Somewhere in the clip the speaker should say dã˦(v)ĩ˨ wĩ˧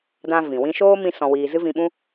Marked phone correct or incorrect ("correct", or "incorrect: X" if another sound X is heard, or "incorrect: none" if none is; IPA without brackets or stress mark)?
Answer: correct